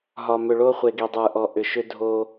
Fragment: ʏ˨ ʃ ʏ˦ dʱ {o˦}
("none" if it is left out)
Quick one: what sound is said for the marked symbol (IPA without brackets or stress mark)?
o˦